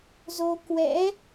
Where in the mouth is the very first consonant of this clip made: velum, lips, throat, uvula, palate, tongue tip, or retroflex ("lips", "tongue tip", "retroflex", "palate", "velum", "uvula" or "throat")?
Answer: tongue tip